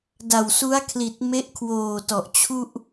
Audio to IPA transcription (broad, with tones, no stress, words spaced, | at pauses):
da˨˩wsu˦˥a̯kʰli˨˩t̚ me˦˥ʔkʰwoː˨˩tɔ˨˩ʔ t͡ɕʰu˥˩ʔ